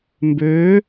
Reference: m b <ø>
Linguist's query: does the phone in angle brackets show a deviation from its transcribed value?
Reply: no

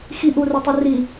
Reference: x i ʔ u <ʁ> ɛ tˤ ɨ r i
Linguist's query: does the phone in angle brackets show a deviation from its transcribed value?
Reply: yes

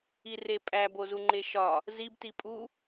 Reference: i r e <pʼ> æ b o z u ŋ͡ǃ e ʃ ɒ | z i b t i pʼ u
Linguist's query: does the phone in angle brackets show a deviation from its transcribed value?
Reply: no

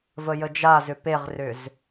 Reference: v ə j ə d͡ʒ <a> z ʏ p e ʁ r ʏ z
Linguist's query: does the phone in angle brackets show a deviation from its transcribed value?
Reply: no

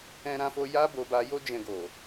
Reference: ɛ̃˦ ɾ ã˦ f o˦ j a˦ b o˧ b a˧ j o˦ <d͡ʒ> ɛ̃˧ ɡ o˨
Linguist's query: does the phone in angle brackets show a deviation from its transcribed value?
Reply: no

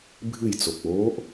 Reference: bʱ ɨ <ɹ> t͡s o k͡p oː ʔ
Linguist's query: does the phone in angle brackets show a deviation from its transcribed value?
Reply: yes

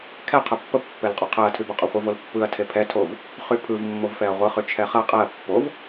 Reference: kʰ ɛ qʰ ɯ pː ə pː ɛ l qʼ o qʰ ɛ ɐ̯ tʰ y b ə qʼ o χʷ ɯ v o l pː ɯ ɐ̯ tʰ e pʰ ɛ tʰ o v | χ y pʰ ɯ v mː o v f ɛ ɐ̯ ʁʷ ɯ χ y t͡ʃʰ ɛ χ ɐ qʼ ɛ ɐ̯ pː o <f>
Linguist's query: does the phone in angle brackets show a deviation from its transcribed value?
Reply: yes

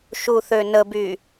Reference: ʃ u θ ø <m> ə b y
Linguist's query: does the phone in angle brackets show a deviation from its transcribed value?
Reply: yes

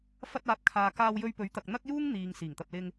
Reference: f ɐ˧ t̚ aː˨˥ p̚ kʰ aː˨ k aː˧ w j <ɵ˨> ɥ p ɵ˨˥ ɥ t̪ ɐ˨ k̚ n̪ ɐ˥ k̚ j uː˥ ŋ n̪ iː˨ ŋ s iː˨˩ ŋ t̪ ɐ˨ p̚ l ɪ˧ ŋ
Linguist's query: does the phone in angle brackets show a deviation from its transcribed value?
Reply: yes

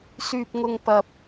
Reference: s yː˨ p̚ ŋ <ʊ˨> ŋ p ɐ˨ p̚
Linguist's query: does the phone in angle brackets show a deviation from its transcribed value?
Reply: no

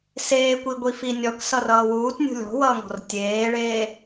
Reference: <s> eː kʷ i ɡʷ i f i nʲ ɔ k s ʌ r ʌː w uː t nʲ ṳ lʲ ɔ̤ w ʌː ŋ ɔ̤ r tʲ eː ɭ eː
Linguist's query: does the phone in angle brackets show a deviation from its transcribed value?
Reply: no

